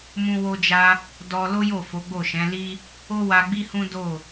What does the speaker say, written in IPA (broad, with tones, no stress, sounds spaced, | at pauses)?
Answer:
m ũ˦ w o˦ d͡ʒ a˦ | d ɔ˧ l o˦ j o˦˨ f o˨˦ ɡ͡b o˦˨ ʃ ɛ̃˨˦ l i˦ | o˦ w a˧ ɡ͡b i˦ h ũ˦ d o˦˨